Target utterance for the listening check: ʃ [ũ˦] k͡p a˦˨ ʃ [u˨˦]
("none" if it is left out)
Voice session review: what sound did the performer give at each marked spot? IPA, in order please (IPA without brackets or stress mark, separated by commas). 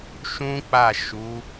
ũ˦, u˨˦